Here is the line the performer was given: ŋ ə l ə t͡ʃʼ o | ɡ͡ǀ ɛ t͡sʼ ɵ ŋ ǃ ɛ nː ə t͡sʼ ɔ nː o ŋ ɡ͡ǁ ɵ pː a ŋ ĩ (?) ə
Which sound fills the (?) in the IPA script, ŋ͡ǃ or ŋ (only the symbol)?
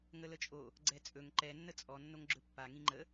ŋ͡ǃ